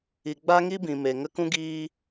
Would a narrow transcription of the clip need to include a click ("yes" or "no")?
no